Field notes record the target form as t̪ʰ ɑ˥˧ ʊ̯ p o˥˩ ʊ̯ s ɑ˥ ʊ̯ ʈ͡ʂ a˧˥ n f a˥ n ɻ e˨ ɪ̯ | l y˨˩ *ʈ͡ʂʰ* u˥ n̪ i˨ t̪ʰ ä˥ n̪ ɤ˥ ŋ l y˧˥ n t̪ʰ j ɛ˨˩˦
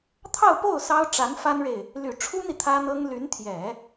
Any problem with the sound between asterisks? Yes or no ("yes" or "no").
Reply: no